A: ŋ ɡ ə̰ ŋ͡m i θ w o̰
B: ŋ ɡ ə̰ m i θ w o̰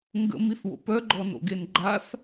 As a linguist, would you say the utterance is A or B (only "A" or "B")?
B